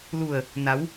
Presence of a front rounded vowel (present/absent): absent